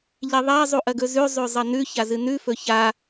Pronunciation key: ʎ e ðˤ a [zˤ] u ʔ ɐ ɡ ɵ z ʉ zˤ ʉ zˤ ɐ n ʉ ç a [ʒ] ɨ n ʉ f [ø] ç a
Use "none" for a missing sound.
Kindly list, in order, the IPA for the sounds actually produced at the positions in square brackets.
zˤ, z, ɵ

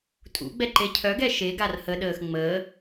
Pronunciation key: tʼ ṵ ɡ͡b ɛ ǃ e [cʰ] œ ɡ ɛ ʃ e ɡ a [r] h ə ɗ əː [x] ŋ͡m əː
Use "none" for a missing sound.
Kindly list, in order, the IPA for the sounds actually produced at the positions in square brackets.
cʰ, r, x

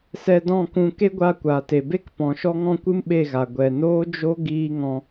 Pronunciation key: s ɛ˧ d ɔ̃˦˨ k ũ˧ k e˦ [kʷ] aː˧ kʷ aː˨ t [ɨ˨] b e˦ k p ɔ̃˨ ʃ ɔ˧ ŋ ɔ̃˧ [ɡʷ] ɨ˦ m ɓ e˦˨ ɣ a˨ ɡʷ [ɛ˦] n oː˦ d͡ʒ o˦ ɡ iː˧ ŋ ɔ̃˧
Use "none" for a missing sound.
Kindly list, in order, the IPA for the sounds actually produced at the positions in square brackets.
ɡʷ, e˨, kʷ, ɛ˨

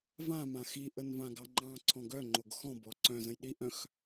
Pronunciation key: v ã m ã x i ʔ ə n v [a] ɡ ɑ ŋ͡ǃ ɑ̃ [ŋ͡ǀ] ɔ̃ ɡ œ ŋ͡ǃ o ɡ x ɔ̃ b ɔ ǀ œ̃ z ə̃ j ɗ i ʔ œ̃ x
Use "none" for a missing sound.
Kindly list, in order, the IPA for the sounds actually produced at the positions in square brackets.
ã, ǀʰ

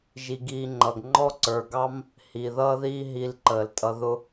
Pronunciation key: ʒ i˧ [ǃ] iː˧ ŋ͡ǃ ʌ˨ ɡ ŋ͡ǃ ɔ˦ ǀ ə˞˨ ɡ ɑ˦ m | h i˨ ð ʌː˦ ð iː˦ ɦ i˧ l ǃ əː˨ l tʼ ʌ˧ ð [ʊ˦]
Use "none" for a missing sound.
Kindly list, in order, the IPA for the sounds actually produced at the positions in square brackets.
ɡ, ʊ˦

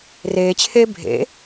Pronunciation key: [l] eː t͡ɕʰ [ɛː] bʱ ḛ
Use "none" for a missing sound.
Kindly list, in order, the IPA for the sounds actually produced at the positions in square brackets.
r, eː

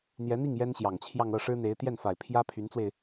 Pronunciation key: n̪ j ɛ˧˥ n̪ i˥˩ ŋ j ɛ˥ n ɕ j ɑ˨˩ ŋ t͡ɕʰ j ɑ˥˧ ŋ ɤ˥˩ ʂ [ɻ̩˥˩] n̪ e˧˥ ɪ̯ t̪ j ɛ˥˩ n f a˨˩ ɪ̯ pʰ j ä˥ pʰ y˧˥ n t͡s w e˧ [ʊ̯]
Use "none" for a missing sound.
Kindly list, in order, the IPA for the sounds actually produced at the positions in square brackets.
ɻ̩˥, ɪ̯

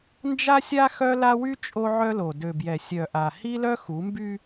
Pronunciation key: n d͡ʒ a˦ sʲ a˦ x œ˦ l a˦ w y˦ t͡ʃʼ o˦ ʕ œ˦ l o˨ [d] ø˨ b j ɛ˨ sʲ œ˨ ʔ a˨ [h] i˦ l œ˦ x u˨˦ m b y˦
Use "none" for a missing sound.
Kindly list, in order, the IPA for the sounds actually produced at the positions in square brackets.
d, h

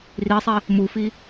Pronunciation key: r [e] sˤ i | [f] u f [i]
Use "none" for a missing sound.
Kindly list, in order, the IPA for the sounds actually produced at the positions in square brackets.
i, m, i

